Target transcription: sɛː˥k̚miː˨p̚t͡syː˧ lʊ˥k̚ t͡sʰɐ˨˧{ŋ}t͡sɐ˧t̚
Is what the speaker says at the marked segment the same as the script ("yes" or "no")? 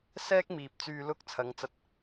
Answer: yes